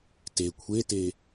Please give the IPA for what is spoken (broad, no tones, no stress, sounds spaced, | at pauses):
t e kʷʰ e t e